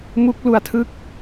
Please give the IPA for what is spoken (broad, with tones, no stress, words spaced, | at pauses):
mu˦˥k̚lu˧a̯tʰɯ˦˥k̚